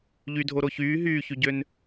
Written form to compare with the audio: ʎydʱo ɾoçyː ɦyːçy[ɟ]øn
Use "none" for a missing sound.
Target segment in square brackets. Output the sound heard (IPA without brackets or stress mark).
ɟ